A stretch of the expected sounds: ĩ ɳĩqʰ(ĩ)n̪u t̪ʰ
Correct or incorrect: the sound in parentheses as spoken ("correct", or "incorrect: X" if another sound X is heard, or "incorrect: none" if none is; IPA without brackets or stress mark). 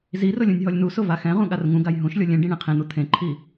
correct